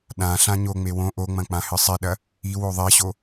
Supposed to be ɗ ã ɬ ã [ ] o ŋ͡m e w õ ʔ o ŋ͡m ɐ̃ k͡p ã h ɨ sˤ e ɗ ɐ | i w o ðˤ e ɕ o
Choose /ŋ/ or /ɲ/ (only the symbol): ɲ